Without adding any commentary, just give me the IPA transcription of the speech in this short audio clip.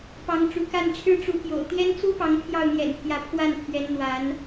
p ɑ˧˥ ŋ ʈ͡ʂ ṵ˨˩ k a˥˩ n ʈ͡ʂʰ ɻ̩˥ ʈ͡ʂ u˧˥ p j o̰˨˩ ʊ̯ t̪ j ɛ˥ n t͡s u˥ p ɑ˧˥ ŋ pʰ j ɑ˥˩ ʊ̯ n̪ j ɛ̰˨˩ n pʰ j ä˧˥ pʰ w a˥˩ n pʰ ɥ ɛ˧˥ n n̪ w a˧˥ n

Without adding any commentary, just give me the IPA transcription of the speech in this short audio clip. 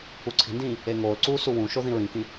u ǀʰ i̤ n d ĩː | e ŋ oː l ǀ uː s u w ũ ʃ o ð ĩ ɹ ĩ k ĩ

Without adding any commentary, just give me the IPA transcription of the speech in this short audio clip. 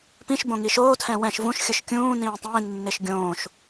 p ĩ ʃ b õ ŋ i ʃ oː tʰ ɛ̃ w ɛ̃ ʃ v ũ ʃ xʲ ɯ ʃ kʲ ũː n ĩː tˤ ĩː nː e ʃ ɡʲ õː ʃ

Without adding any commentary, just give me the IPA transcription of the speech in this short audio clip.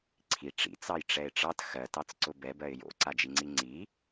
ǀʰ i ʈ͡ʂ ḭ t͡s ɑ j ʈ͡ʂ ɛ ɪ̯ ʈ͡ʂ ɑ t x ɜ t ɑ t͡s ǀ ʊ b ɛ b ɜ ɪ̯ j o̰ ǀ a d͡ʒ i ŋ͡ǀ i ŋ͡ǀ i

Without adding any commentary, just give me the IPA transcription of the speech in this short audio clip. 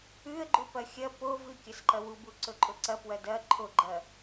ʉ ə̯ ɡ͡ǃ u p ɐ xʲ ɐ p o v ɨ kʲ ɐ s ǃ ɐ w u b u ǀ ɵ ǃʼ ɵ ǀ ɐ p w ɐ d ɐ ǃʰ o ɡ͡ǃ ɐ

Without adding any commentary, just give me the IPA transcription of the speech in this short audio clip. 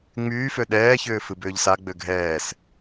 ŋ͡m yː f ø ɗ ɛː ç ʏː f ɨ b ʏː ʎ s a ɡ͡b ø ɡʱ ɛː s

